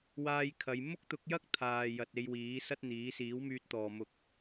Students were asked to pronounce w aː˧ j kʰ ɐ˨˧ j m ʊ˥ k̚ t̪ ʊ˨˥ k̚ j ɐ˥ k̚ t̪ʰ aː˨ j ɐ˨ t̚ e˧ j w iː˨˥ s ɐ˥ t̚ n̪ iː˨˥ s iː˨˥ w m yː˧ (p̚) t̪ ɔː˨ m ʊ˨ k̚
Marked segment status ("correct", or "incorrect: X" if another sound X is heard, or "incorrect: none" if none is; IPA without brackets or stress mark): incorrect: t̚